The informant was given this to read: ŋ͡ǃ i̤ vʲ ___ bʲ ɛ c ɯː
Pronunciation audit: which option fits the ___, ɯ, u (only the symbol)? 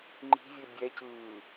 ɯ